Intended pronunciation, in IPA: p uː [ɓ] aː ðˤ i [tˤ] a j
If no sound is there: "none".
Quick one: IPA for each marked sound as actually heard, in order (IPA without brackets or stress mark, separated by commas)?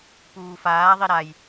f, ɾ